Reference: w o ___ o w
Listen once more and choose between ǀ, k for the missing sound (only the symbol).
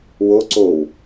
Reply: ǀ